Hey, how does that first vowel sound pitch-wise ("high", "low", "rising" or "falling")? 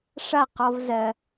falling